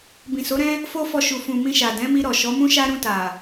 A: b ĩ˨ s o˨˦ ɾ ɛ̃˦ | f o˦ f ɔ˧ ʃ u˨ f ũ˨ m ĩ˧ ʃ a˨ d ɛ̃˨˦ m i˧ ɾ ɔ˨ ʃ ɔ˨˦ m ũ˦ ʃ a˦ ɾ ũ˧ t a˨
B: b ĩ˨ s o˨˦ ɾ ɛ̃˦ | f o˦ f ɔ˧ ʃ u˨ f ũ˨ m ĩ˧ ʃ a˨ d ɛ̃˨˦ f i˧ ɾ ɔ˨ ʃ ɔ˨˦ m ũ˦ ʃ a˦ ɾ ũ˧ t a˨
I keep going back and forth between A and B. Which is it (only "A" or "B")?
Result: A